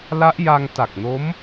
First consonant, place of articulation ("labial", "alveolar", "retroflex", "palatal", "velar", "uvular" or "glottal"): alveolar